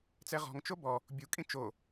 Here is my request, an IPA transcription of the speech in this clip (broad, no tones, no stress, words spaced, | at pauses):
t͡sɛʁɔ̤ŋ t͡ʃobɔ | bʲu kʼĩt͡ʃo